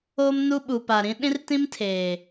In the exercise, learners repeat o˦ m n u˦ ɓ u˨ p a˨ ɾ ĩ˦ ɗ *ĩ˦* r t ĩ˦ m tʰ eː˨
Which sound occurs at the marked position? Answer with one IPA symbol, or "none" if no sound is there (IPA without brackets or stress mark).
ĩ˦